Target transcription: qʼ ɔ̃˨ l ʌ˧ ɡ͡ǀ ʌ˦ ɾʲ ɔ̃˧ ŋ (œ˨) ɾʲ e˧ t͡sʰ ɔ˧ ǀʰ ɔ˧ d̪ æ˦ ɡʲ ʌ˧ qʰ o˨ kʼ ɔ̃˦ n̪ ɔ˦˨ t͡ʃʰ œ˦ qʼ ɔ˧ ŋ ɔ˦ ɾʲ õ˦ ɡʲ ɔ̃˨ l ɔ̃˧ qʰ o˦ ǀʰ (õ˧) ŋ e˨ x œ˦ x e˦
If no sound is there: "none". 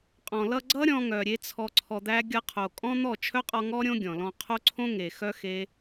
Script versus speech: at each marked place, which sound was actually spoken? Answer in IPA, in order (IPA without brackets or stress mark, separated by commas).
œ˨, õ˦